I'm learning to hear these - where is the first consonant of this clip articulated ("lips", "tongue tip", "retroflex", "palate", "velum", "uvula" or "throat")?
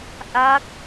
throat